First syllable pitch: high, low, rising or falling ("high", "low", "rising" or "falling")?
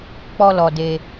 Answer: high